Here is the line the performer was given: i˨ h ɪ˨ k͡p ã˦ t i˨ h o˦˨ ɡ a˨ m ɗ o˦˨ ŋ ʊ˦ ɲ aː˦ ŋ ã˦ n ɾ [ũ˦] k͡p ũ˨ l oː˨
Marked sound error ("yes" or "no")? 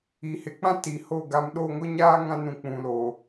yes